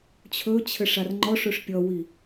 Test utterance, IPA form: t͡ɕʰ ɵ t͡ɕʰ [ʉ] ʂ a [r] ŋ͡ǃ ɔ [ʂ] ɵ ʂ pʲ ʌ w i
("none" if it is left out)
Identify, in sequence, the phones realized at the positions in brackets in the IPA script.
ɘ, r, ʂ

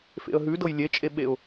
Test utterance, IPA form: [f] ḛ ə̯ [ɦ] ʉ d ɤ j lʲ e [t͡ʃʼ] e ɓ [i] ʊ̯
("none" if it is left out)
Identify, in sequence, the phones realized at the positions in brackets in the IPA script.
f, ɦ, t͡ʃʼ, e

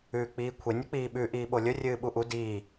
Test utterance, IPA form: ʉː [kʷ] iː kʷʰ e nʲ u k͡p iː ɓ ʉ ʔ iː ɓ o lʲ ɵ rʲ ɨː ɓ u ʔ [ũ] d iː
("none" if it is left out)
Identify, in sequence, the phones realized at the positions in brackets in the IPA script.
k͡p, u

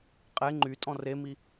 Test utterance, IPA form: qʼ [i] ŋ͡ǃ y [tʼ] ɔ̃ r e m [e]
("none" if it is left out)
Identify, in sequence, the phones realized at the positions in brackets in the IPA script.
e, tʼ, i

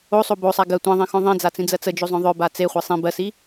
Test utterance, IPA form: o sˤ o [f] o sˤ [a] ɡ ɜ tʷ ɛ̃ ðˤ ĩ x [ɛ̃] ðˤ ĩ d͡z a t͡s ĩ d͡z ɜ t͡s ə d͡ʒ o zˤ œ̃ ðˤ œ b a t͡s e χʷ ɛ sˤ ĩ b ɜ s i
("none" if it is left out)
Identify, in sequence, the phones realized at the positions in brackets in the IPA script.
b, a, œ̃

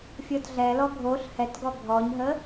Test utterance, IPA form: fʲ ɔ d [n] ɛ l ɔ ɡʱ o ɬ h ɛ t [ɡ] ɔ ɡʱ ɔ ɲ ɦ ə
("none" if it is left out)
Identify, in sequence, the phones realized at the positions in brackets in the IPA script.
ɮ, ɡ

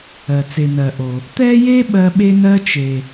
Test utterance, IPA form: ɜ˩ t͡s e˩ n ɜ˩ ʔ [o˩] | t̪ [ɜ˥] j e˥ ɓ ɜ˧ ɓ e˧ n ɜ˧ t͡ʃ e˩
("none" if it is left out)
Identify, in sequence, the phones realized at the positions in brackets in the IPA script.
o˩, ɛ˥

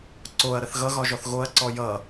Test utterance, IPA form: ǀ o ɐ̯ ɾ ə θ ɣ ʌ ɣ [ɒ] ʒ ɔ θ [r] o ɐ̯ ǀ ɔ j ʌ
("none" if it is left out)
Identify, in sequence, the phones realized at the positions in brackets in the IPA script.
ɒ, ɣ

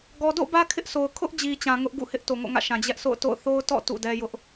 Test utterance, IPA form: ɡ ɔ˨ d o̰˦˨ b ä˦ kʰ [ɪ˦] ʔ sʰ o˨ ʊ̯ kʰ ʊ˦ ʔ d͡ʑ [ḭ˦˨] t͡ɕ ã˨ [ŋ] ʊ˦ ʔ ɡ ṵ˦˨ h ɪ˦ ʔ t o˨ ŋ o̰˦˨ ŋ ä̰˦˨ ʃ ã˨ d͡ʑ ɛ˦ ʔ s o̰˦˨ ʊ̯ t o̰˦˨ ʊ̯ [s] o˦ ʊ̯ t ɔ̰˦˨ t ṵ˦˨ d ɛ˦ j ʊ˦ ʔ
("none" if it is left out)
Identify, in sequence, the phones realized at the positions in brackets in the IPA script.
ɪ˦, i˨, ŋ, θ

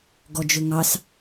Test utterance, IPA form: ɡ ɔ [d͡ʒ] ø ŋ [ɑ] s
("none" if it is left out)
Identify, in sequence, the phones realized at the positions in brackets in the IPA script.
d͡ʒ, ɑ

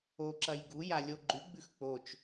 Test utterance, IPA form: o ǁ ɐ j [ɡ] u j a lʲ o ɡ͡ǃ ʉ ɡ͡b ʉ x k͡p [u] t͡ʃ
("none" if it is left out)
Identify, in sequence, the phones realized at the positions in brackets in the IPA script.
ɡ, o

